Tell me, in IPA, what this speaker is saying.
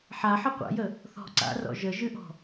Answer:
ħaħə qʷa̰jə | θɔ̤ ǀa̰rɔ̰ ʒəʒɨʔɔ̤

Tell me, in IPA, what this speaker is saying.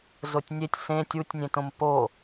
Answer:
zotʲnʲetʲ sẽ tʲutʲnʲẽtõm po

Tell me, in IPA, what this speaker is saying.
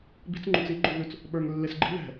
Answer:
bi̤t͡s ŋ͡ǃũt͡si ɡ͡ǃuɣʉt͡s | ɓə˞ŋ lːesɡ͡ǃi̤ ðɛ̤

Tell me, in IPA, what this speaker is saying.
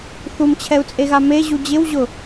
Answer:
θumt͡ɕʰɛu̯t͡sʼeɣa meʑu d͡ʑɪwʑʊ

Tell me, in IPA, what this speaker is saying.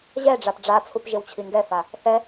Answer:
ʑɛɖ͡ʐap ɖ͡ʐat͡sʰup ʒɪwt͡ɕʰiŋɡɛfa | θɛ

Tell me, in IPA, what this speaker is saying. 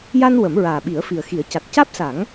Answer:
ja˧n wə˨˩˦mɹaː˨˩ ɓi˨˩˦ə̯fi˨˩ə̯xi˨˩˦ə̯ ca˨˩t̚ caː˦˥p̚sa˨˩˦ŋ

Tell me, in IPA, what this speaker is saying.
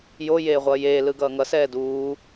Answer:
jo jeːʁʷʌːjeː lɯɡʌːŋʌ sɛːduː

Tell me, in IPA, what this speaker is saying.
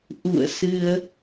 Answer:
ʔṵ˧˨ə̯sɨ˧ə̯

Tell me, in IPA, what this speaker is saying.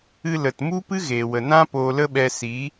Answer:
ɨ˧lə˨tmu˦ pɨ˦ɣeː˨wə˨nã˦ poː˧lə˦ɓɛ˧ si˨˦

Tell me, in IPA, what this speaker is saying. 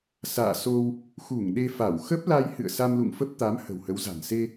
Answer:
sa̰ː˧˨so˧w | xu˧˩ŋɗe˧fa˧˩w xə˦˥p̚la˧jhɨ̰˧˨ə̯ sa˧mlṵ˧˨ŋfə˦˥p̚ t̪a˨˦m hə̤˨˩whə˨˦wza̤˨˩n se˧

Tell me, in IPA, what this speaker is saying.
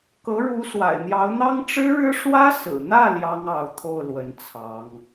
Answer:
kɤ˧˥ɻu˧˥ swa̰˨˩ɪ̯n̪jɑ˧˥ʊ̯n̪ɑ˥ŋ ʈ͡ʂɻ̩˥ɻɻ̩˥ ʂwä˥sɹ̩˨˩n̪ä˥˩ ljɑ˥ŋɑ˧˥ʊ̯t̪ʰo˥˩ʊ̯ lwə˧˥nt͡sʰɑ˧˥ŋ

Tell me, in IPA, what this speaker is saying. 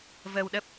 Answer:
vəː˧wɗə˦˥p̚

